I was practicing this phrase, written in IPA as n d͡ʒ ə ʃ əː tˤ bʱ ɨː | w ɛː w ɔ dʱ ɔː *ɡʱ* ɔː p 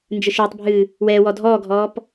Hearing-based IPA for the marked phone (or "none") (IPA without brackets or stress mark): ɡʱ